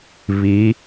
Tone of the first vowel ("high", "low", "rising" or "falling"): rising